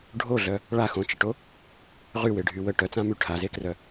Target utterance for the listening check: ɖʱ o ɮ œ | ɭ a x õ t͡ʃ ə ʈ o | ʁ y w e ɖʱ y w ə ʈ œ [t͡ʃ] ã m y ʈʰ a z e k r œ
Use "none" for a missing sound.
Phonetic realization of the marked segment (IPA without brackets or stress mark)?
t͡s